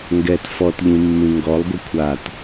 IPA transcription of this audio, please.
ŋ ɡ ɛ t f ɔ t ʎ ĩ mː ĩ ŋ ɡ ɔ lˠ ɡʷ ʌ kʷʰ a t

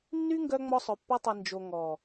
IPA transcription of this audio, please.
nː y˦ ŋ ɡ œ˧ ŋ͡m ɔ˧ sˤ œ˨ pː a˧ tˤ i˨ n d͡ʒ o˨ ŋ ɔ˨

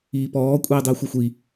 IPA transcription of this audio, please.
iː p ɔː kʷʼ iː dˤ iː xʷ e xʷ i

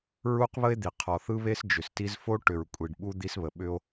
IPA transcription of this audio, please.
ɹ u˦ q β ə˦ e̯ d̪ i˨ qʰ ɔ˨ θ ɯ˦ β e˦ s d͡ʒ ʏ˨ s t i˦ z f o˦ ʈ ʏ˨ ɹ kʷʼ i˨ ɖ ɓ u˦ d̪ i˦ s β ə˨ ɓ ʏ˦ o̯

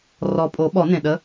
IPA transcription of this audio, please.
r ɔ˨˩ pʼ o˨˩˦ ɓ ɔ˨˩˦ n ẽ˨˩ ɗ ə˨˦

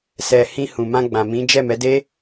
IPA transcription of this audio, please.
s ɛ˨ h ĩ˧ h ũ˨ m ã˧ ɡ͡b ã˨ m ĩ˨˦ d͡ʒ ɛ˦˨ m ɛ˨˦ d e˦

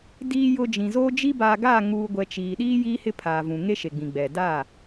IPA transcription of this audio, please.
d iː˨ j ʊ˨ d͡ʒ ĩ˨ z oː˦ d͡ʒ i˦ b aː˨ ɡ aː˦˨ ŋ uː˨ ɡʷ ɛ˨ t͡ʃ iː˨ ɗ iː˦ j iː˦ h ɪ˦ pʰ aː˨ v ũ˨ ŋ e˦ ʃ e˨ ɡ͡b ĩ˨ ɡ͡b ɛ˨ d a˦˨

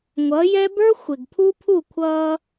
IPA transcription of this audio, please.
ŋʷ ʌ˨˦ j ɛ˦ b ə˞˦ xʷ ɪ˨ ɡ pʰ u˦ pʰ u˦˨ kʷʰ ʌː˦

